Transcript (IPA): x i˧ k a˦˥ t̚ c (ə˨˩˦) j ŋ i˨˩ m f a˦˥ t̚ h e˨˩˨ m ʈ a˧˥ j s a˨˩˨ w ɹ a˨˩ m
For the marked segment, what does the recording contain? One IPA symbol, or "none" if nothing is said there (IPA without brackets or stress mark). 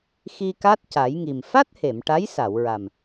a˨˩˦